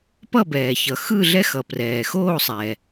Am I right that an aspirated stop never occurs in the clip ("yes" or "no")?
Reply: yes